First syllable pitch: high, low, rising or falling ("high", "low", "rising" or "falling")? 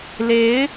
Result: rising